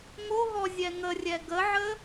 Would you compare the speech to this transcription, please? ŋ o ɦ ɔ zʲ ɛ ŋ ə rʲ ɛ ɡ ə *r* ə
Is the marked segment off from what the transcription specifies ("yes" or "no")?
yes